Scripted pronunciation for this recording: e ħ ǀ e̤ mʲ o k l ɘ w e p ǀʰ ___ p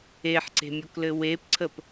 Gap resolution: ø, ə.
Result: ə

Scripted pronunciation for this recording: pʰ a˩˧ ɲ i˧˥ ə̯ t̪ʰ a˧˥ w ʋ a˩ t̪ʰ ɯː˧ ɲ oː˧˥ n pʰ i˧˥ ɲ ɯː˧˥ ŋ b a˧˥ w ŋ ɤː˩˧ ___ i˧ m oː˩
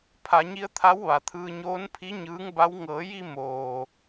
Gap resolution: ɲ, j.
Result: j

